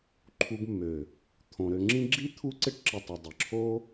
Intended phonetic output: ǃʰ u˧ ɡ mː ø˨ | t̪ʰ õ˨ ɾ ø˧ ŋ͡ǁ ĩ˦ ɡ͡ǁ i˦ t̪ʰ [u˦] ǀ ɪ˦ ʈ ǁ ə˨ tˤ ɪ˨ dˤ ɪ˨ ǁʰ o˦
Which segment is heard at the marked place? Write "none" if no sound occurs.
u˦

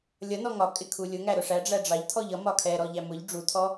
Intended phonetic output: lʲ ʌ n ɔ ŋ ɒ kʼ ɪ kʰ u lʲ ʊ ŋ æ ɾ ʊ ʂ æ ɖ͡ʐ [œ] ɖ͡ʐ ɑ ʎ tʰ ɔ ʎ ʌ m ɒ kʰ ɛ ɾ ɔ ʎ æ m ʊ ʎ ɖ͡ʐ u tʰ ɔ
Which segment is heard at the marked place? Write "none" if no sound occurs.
æ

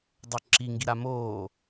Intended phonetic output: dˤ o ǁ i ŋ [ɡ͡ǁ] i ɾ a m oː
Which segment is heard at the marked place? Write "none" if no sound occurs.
ɡ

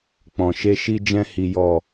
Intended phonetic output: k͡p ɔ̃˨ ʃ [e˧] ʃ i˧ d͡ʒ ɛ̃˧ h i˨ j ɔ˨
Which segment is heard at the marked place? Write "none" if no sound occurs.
e˧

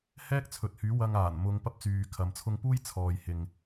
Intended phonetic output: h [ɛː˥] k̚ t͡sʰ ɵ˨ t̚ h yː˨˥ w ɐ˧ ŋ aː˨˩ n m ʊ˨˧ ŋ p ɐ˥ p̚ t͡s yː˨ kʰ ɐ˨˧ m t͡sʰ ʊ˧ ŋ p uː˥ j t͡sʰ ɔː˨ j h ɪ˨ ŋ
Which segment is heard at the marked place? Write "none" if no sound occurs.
ɛː˥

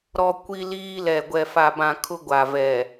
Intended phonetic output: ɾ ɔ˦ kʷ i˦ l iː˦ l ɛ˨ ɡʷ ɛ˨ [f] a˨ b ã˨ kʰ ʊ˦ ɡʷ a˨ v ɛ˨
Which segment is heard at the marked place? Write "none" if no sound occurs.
f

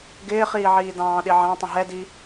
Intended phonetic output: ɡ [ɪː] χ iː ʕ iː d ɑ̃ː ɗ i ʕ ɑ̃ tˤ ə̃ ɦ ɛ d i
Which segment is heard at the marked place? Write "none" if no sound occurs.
ɪː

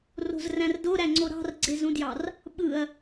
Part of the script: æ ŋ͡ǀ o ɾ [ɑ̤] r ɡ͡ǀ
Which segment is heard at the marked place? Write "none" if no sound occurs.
ɑ̤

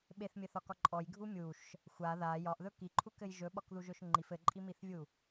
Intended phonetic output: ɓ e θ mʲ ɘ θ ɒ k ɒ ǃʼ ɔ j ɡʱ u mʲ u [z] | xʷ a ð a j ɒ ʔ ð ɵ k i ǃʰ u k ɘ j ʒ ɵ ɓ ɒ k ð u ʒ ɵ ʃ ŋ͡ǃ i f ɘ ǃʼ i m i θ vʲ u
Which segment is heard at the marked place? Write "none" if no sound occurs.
ʃ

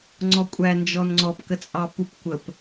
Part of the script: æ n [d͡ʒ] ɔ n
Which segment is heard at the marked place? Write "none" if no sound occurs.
d͡ʒ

